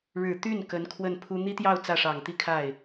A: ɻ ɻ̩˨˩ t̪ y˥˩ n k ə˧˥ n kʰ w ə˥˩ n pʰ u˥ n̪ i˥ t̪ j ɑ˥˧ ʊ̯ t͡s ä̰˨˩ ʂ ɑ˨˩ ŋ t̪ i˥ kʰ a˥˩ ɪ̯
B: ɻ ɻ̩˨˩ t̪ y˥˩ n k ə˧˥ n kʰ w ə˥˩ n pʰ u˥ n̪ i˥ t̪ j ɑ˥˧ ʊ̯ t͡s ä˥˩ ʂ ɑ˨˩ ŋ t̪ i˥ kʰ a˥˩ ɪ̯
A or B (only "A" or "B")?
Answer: B